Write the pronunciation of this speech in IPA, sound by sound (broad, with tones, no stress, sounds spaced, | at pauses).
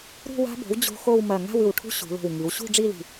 ɾ ṳ˥˧ w a̤˦˥ b o̤˩˥ w d͡ʑ o̤˦˥ x o˥˧ w m ɐ˧˩ ŋ a̤˥˧ w ʉ˧˩ w ʈʰ ṳ˦˥ ɕ ṳ˩˧ l o̤˧˩ w ŋ i˩˧ w ɕ ṳ˥˧ ɖ͡ʐ i˥˧ l i̤˧˩